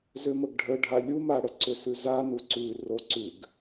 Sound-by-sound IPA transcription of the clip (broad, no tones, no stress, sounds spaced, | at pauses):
z ʏ m ə ɡ ɖʱ ə ɖʱ a lʲ u m a ɽ ə ǀ ʏ s ʉ z a n u ǀ ʉ r o ǀ ʉ ɡ